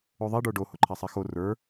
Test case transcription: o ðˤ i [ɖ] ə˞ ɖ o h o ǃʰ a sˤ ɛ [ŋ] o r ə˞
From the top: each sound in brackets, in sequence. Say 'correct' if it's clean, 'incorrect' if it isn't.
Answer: correct, incorrect: x

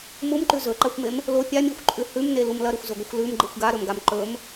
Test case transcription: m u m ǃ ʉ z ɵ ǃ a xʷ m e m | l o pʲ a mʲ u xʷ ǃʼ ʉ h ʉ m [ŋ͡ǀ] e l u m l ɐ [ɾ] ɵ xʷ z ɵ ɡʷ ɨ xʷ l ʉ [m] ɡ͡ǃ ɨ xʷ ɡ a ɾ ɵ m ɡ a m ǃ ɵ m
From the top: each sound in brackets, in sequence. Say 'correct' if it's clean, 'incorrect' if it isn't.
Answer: incorrect: n, correct, correct

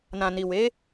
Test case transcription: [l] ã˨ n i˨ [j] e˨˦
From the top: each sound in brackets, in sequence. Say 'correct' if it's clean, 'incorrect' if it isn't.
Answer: incorrect: n, incorrect: w

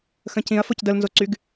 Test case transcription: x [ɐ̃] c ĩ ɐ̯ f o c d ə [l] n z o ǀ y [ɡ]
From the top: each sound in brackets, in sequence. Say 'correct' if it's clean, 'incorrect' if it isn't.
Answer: incorrect: ə̃, correct, correct

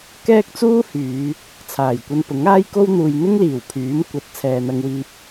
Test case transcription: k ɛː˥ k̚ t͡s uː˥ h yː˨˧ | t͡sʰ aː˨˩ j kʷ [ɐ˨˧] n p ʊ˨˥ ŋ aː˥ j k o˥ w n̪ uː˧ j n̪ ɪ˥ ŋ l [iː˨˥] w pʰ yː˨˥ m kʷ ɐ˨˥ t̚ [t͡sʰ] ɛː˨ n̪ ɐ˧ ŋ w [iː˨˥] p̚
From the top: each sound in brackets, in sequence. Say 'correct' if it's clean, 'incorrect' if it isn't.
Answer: incorrect: ɐ˧, incorrect: iː˨˩, correct, incorrect: iː˧

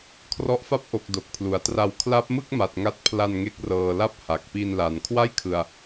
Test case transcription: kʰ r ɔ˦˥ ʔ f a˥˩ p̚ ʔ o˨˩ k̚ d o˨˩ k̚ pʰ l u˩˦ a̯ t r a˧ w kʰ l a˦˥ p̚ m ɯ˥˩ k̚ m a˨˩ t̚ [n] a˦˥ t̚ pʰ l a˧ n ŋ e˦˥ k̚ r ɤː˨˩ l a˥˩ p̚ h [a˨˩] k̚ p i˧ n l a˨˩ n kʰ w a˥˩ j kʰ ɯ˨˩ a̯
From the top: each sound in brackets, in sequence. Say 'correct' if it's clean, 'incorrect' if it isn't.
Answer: incorrect: ŋ, correct

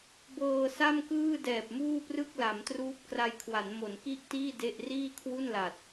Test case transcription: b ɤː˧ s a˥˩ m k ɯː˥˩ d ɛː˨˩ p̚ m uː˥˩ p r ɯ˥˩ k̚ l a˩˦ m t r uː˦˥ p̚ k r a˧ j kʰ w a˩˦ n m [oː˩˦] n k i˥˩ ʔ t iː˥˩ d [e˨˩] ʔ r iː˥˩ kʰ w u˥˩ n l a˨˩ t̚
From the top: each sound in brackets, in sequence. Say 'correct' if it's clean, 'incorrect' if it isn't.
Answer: incorrect: o˩˦, incorrect: e˥˩

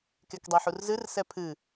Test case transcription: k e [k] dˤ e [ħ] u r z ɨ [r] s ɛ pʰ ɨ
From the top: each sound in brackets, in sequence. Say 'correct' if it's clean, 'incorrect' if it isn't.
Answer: correct, correct, correct

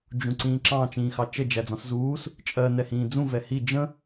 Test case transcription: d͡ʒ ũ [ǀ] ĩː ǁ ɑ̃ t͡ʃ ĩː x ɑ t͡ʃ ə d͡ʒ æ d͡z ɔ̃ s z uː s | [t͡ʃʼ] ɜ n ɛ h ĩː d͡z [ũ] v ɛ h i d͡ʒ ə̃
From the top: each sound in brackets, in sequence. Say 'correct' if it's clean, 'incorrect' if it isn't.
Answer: correct, correct, correct

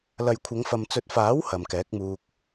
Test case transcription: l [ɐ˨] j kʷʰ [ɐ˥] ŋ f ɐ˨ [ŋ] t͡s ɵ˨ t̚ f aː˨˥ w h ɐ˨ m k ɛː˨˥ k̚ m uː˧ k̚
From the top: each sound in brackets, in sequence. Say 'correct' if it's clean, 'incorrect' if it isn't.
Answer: correct, incorrect: ɐ˨˧, incorrect: m

